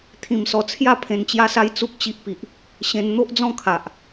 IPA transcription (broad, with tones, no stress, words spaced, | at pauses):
t̪ʰĩ˧msɔ˧ t͡sʰja˥˧ pʰẽ˧nt͡ɕja˦sa˦j t͡su˦k̚t͡ɕi˦ʔ pi˨ʔ | ɕẽ˧n n̪o˦ʔd͡zɔ̃˥˧kʰa˨ʔ